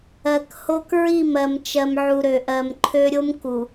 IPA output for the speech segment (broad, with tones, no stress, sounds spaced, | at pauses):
ɜ˨ k h o˦ k ɹ i˦˨ m ɜ˨ m t͡ʃ ɜ˨ m ʕ u˨ ɾ ø˨ ʔ ɜ˨ m ǃʰ ø˦ ɾʲ o˦ m k u˨